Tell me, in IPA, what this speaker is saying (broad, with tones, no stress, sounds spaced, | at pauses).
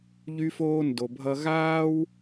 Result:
ʎ y˦ f oː˦ n d o˧ bʱ ʌ˦ ɣ aː˦ w